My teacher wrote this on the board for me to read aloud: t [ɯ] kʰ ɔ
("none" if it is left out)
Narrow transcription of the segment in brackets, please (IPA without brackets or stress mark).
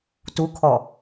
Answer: u